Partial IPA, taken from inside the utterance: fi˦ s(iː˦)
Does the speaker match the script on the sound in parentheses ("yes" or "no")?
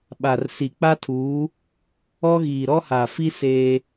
no